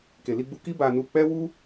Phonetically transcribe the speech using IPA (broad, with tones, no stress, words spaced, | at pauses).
ke˨li˧ɡ͡bu˧ki˦ ba˧nu˧ k͡pɛ˦wu˦